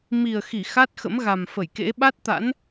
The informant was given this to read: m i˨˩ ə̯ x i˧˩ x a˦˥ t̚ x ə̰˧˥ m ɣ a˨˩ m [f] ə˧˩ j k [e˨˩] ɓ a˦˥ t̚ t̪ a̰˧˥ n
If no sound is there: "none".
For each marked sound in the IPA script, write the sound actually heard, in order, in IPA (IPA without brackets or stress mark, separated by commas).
f, ḛ˧˥